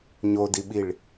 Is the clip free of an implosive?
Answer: no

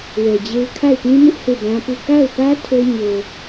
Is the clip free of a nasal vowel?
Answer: no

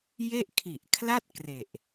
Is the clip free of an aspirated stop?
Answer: no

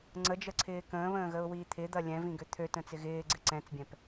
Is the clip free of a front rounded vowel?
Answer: no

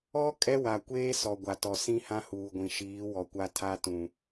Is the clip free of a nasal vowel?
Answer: no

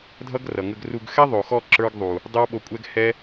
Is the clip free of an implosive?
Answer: no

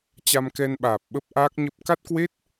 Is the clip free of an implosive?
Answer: no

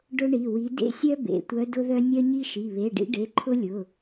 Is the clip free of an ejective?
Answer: yes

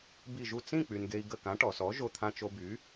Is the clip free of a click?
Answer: yes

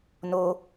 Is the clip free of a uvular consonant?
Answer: yes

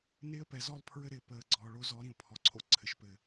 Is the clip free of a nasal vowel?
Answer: no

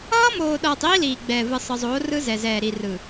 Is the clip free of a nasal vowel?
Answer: yes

